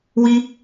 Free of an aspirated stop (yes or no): yes